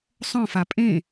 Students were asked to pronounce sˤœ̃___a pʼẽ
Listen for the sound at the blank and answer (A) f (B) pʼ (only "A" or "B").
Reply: A